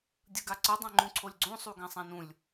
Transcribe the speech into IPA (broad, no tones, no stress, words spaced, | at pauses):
dʲɯɡaǀɯ dˤãŋ͡ǃũǀʰolʲɡ͡ǀõ sˤuɡãsˤãnũlʲ